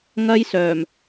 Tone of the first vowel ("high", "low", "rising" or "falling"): high